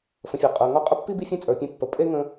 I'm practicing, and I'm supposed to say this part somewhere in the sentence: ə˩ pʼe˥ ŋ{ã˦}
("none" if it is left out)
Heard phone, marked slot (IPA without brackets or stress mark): ə̃˦